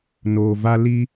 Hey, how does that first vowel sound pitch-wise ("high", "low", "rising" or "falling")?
low